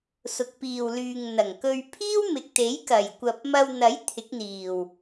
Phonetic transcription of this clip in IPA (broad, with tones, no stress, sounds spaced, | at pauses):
s ʊ˨ k̚ p iː˨ w l yː˨ ŋ n̪ ɐ˨˩ ŋ k ɵ˧ ɥ pʰ iː˥ w m ɪ˨ k̚ t̪ e˨˥ j k ɐ˨˩ j kʷ ɐ˨ p̚ m ɐ˧ w n̪ ɐ˨˥ j t̪ʰ ɪ˨˥ k̚ n̪ iː˨˩ w